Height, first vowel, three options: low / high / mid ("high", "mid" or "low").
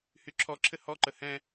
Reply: high